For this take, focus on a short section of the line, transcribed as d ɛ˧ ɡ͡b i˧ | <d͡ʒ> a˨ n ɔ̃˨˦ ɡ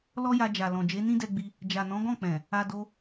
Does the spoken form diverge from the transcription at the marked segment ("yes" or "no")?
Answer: no